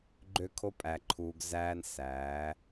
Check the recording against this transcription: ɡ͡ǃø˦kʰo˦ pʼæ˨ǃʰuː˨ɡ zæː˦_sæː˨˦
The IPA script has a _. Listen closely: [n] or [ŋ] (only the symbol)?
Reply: n